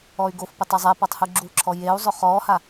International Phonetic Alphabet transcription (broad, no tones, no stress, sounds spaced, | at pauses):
ɔ y̯ ɡ o f p ɪ tˤ e zˤ ɛ p ɔ tˤ h u ɡ͡ǁ u ǁʰ ɔ j e u̯ zˤ ʊ χ ɔː h a